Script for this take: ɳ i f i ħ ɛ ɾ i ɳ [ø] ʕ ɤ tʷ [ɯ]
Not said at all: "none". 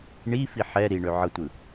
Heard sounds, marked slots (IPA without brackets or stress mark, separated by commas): ø, ɯ